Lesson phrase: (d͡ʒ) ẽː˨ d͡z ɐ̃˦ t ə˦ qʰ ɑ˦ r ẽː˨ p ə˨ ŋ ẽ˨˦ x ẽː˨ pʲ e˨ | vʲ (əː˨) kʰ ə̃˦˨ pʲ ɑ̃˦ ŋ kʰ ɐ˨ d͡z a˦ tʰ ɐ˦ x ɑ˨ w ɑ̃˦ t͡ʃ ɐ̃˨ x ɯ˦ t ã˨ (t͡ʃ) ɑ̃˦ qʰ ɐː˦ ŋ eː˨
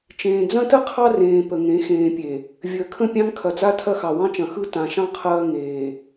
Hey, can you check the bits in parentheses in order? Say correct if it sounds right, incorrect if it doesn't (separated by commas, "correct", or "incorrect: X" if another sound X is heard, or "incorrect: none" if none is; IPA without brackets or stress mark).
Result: incorrect: t͡ʃ, correct, incorrect: ʃ